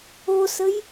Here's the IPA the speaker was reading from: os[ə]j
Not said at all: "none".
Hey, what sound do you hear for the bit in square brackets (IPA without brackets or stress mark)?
ə